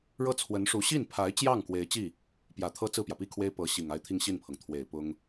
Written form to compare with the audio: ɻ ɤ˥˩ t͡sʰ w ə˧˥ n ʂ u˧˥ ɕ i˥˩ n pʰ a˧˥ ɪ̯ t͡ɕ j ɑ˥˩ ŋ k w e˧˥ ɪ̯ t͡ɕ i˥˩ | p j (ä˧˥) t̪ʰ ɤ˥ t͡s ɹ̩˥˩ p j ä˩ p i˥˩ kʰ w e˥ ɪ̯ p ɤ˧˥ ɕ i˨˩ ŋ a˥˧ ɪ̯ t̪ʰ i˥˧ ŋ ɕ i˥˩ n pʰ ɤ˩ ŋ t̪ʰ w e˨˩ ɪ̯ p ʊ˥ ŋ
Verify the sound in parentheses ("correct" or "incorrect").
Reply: incorrect